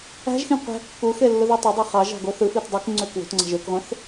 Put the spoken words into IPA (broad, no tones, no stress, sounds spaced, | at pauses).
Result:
æ̤ ʒ x ĩ qʷ æ̤ kː u x e lː ɯ ð e tˤ ø dˤ e χ ɑ ʒ ɑ̤ ɡ o θ ɯ f i t dˤ y k ŋ͡ǀ ø k w o̤ t ŋ͡ǀ ɑ̤ ʒ ø k ʁʷ ẽ θ